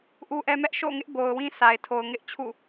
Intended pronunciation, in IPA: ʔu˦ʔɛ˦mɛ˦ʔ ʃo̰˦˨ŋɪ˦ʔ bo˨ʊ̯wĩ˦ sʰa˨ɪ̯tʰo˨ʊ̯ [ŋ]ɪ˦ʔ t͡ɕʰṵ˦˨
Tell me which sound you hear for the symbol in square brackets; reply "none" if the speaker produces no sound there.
ŋ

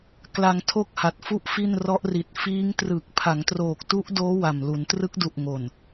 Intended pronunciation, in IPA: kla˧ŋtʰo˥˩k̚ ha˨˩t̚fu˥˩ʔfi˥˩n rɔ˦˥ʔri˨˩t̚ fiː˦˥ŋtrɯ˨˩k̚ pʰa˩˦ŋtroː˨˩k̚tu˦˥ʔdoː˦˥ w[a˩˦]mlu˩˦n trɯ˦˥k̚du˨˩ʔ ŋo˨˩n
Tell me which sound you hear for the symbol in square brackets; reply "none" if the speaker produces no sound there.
a˨˩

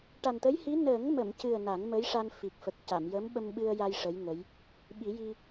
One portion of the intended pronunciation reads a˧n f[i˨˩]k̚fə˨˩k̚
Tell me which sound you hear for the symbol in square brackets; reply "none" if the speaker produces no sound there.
i˨˩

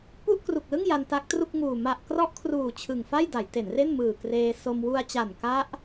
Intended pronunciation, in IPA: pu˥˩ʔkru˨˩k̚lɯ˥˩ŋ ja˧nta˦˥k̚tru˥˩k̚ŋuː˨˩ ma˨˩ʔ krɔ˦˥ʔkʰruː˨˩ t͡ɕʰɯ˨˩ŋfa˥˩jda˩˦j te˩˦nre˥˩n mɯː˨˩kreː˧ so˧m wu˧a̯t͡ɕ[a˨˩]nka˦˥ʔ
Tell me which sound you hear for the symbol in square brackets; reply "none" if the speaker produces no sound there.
a˨˩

